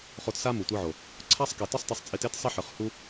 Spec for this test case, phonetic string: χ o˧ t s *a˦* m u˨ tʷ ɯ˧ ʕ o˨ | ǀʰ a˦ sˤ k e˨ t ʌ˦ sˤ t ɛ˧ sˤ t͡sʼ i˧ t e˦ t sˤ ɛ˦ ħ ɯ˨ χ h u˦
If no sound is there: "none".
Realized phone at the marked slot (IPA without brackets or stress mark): a˦